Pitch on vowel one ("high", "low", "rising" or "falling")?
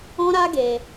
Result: high